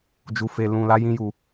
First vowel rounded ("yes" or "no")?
yes